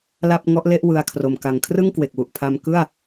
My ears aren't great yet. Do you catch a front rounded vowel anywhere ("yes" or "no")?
no